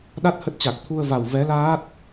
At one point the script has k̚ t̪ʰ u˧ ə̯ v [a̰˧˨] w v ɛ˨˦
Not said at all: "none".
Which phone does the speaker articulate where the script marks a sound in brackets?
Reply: a˨˩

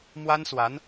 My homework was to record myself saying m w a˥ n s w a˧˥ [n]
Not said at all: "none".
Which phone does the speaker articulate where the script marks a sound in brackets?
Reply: n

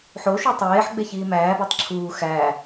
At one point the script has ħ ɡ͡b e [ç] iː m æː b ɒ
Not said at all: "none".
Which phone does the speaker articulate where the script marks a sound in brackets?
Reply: ç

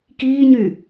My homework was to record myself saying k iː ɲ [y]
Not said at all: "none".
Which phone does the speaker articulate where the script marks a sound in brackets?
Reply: y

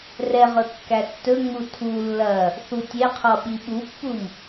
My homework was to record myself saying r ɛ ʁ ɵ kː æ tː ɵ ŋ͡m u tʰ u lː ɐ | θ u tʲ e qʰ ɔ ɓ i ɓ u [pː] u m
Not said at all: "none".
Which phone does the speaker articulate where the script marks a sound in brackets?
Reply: pː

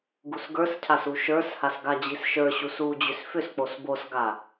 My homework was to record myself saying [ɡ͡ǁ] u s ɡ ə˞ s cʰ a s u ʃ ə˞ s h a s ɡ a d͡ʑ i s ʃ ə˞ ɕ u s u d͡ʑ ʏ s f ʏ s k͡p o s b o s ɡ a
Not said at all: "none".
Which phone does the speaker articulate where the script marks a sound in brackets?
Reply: ɡ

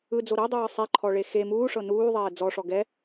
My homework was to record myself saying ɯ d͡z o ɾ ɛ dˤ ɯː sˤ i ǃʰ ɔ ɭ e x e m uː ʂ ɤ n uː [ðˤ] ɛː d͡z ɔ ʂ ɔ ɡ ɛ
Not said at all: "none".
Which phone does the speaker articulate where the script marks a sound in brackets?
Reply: ðˤ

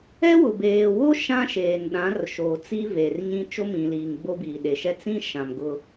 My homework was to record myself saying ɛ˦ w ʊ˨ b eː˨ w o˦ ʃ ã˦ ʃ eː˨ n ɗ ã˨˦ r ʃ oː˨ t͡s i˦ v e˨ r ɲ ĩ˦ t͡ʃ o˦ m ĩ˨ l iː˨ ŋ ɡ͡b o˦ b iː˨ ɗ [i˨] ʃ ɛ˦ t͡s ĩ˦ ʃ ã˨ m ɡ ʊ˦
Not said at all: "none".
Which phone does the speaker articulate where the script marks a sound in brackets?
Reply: e˨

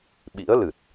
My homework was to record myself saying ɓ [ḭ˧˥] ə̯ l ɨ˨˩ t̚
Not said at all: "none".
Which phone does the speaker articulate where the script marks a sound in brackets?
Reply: ḭ˧˥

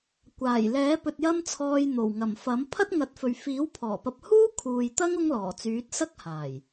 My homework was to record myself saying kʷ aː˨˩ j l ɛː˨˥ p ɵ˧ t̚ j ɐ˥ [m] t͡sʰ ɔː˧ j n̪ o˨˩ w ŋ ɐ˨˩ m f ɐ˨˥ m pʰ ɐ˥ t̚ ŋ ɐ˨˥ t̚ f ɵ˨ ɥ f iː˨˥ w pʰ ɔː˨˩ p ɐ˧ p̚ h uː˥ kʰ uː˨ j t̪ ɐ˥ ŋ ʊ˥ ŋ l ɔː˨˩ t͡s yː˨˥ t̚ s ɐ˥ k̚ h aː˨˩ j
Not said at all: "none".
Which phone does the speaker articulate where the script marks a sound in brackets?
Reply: m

